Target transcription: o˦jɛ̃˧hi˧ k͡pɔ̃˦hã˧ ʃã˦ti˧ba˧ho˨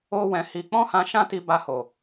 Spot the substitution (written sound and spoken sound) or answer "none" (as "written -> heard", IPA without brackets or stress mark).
j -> w